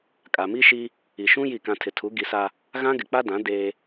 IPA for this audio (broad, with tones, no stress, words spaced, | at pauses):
kʼa˨mi˦ʃi˦ | i˨ʃũ˦ ji˦˨kã˦ tʰɪ˨tʰu˨˦ɡi˨˦sa˦ | ɣã˦ ɡɪ˨k͡pa˦dã˨˦ deː˦